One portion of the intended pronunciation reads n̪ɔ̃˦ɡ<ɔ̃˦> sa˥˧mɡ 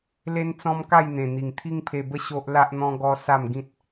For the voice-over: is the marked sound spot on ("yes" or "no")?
no